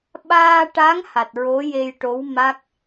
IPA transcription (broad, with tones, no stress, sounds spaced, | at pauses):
ɓ aː˧ ʈ a˧˥ ŋ h a˨˩ t̚ ɹ o˧˥ j e˧ j ʈ o˧˥ w m a˦˥ k̚